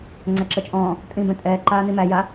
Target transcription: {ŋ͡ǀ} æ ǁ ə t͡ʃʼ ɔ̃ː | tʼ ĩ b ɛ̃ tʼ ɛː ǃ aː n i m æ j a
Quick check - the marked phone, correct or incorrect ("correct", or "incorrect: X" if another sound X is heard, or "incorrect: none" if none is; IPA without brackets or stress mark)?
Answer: correct